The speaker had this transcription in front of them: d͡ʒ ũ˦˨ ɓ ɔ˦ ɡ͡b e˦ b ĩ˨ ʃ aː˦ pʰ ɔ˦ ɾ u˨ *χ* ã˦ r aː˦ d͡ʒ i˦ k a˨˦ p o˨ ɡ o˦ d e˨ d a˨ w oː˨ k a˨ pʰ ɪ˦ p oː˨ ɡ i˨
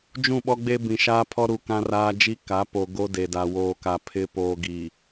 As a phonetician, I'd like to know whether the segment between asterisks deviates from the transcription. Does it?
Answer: yes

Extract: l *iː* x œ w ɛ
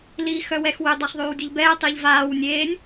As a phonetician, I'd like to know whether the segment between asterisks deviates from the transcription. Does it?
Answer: no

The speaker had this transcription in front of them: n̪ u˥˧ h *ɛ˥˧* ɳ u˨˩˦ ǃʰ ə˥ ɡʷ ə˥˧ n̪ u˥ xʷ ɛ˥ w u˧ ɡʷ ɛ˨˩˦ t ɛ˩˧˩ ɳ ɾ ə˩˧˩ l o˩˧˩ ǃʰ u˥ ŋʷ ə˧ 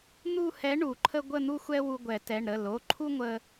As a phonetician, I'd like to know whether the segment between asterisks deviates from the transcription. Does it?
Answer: yes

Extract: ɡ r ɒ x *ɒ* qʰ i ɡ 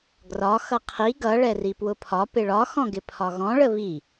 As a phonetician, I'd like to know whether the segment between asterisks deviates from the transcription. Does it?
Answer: yes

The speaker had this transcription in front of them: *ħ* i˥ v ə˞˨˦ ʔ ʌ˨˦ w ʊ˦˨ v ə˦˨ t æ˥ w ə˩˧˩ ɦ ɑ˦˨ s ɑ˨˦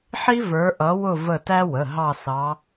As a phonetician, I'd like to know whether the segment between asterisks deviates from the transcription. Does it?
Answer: no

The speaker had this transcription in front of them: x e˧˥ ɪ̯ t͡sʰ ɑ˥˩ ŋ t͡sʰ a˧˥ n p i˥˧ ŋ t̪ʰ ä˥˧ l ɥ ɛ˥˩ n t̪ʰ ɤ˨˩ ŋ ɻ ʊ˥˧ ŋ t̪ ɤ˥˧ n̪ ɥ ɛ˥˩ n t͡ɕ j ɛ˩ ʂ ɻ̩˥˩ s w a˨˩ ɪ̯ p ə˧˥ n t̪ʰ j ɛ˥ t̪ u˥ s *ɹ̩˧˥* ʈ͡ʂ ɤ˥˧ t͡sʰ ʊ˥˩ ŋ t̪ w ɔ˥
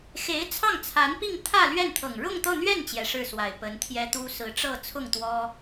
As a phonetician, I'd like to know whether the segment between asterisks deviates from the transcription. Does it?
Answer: no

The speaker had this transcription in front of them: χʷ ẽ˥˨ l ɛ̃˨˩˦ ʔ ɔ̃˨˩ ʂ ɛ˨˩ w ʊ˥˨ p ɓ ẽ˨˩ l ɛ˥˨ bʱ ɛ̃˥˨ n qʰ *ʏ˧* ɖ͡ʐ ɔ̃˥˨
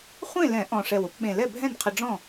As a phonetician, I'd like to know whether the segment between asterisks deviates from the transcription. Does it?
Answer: yes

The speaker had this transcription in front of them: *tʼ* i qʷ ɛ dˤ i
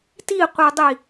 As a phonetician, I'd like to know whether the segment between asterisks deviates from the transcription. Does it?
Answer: yes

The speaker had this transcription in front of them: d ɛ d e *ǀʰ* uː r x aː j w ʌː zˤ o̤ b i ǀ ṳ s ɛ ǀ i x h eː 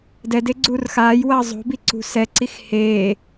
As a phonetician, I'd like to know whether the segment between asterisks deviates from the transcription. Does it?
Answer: yes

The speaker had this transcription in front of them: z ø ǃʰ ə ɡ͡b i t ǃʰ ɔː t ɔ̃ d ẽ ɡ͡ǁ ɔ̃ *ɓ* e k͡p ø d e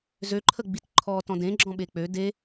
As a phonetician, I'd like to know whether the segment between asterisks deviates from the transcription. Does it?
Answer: no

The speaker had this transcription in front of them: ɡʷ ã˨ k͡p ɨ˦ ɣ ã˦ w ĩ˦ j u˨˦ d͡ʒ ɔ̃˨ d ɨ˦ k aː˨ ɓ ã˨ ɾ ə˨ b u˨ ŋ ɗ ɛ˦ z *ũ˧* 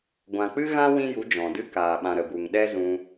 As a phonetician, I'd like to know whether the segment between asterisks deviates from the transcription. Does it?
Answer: no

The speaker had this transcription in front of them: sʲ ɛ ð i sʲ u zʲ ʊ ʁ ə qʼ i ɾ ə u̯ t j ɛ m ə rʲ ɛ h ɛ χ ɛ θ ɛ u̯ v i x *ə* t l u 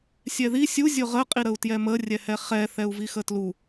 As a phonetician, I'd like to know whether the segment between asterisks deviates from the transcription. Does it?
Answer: no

